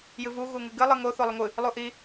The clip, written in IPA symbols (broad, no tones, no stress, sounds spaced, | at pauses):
j ɨ v u ɣ u ŋ ɨ ɡ ɨ lˠ ɨ ŋ o θ o lˠ ɨ ŋʷ ɨ | lˠ u ʔ i